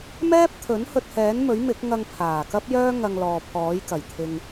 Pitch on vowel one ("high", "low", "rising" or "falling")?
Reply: high